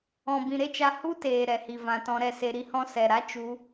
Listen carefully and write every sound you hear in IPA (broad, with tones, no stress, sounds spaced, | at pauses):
ɔ̃˨ b ĩ˨ ɾ e˦ t͡ʃ a˧ h u˦ t eː˨ ɾ ɛ˨ h i˨ v ã˨ t ɔ̃˧ ɾ ɛ˧ s e˧ ɾ i˦ h ɔ̃˦ s ɛ˨ ɾ a˦ t͡ʃ u˦